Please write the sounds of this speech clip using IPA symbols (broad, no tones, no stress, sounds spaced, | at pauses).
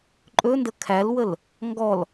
ǃʼ ɵ n d ə kʰ æ l w ə l | ŋ ɡ ɔ l